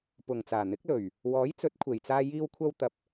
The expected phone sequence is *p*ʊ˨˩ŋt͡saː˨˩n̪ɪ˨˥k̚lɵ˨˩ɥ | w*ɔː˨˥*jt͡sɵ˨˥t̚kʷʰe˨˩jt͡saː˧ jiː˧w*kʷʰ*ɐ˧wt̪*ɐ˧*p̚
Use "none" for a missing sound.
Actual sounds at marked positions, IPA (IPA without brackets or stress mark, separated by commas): p, ɔː˨˥, kʷʰ, ɐ˨